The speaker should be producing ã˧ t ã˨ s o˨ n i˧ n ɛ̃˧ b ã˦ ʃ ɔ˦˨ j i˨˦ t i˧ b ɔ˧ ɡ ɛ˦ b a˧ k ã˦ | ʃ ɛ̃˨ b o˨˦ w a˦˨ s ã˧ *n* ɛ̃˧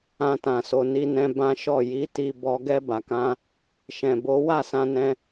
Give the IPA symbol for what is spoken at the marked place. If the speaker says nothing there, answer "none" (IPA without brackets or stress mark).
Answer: n